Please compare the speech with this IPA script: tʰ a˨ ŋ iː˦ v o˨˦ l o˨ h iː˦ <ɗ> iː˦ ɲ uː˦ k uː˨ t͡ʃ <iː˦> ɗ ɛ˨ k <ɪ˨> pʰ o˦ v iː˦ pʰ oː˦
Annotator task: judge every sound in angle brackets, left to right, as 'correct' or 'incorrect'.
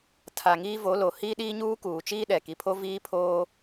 correct, correct, incorrect: i˨

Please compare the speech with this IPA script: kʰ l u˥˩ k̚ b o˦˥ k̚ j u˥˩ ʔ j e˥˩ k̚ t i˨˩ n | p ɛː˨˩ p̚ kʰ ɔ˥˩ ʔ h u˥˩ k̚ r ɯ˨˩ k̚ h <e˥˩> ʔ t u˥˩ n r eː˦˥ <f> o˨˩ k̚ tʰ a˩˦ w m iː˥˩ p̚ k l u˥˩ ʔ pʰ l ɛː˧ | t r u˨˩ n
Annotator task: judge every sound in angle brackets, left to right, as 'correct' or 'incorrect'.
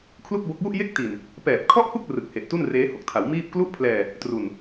incorrect: e˨˩, incorrect: h

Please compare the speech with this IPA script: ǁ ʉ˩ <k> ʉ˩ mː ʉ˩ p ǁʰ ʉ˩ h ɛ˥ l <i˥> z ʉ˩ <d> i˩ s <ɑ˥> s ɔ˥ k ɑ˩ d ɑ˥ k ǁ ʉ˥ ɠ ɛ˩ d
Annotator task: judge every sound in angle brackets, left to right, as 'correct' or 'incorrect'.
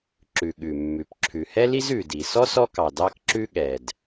incorrect: ɠ, correct, correct, incorrect: ɔ˥

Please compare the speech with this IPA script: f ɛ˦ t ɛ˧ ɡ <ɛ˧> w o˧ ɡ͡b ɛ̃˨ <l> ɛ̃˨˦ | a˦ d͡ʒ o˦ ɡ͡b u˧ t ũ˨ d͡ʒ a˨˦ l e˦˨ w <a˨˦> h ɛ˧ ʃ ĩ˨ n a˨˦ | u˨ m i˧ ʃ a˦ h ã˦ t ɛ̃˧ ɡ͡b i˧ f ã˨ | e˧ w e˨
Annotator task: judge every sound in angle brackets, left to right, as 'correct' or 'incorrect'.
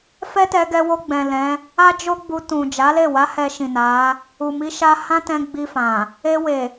correct, correct, correct

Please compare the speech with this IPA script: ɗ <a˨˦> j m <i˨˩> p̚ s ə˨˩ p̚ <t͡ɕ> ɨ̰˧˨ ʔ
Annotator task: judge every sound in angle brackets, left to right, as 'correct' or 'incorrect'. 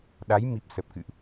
correct, correct, incorrect: k

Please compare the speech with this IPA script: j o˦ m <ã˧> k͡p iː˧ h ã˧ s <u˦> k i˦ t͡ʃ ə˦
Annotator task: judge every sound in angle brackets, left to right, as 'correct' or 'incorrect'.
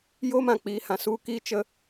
correct, correct

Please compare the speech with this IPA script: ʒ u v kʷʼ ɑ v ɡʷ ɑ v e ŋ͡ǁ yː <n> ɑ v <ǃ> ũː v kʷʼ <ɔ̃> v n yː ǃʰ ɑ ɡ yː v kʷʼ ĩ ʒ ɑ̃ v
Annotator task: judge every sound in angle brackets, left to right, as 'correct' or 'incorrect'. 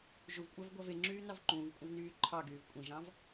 correct, correct, incorrect: ɑ̃

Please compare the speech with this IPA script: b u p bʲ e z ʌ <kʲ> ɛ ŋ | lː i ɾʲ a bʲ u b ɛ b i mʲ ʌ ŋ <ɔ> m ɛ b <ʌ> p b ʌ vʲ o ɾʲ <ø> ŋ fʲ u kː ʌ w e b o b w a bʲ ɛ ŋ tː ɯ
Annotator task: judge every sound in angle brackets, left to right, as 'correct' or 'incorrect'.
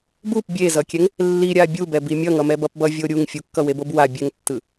correct, incorrect: ʌ, correct, incorrect: u

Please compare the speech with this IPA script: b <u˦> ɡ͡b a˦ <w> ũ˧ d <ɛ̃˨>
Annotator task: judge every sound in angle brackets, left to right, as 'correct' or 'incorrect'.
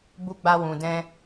correct, correct, incorrect: ɛ̃˦

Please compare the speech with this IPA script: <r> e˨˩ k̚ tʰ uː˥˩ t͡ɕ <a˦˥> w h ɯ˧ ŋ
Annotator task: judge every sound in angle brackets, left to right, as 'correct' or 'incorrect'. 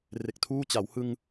correct, incorrect: a˩˦

